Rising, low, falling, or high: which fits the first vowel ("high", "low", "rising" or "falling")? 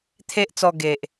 high